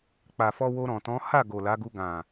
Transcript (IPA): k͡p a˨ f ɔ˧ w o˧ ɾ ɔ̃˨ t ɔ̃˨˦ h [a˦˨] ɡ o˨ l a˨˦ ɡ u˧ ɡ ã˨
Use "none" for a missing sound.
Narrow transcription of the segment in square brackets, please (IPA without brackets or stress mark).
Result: a˦˨